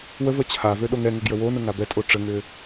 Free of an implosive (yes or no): no